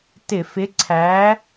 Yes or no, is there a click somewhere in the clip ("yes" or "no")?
yes